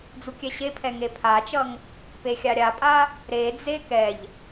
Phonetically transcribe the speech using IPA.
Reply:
d͡zukʲɛɕepʰɛ ŋepʰat͡ʃʌŋ | pexʲaɾʲapʼa | ɾed͡ze kɛʎ

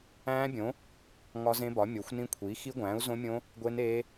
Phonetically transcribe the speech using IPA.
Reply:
æ̃ː˦˥bʲõ˨˥ | ŋɒ˦˥zẽ˦˥bɒ˨˥ mʲo˨˥xʷnĩ˦˥kʷʰiː˨˥ xi˦˥ɡʷæ̃ː˨˥u̯zõ˦˥mʲõ˦˥ | ɡʷe˦˥neː˦˥

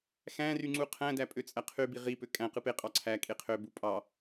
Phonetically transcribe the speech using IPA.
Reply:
xæ̃ry ŋ͡ǀuqʰæ̃dæ pʼøt͡sʼæqʰybi ʁipø kʼæ̃ qɯpeqʼɑ ǀʰæ kʼeqʰøbu pʼɑ

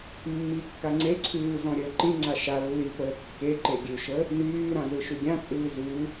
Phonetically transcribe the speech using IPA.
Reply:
mːikːa ŋ͡ǀeǀʰʉː zɔ̃ɾʲəːǃĩŋ͡ǀa ʃa lːi pəːkːeǃe ɡʲʉʃə | nyːɾã zɯʃyɡʲãt͡sʼʉː zʉ

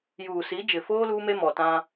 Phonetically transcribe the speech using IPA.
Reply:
juː˨si˨˦d͡ʒɪ˨foː˦ luː˦me˦ mɔ˨tã˦

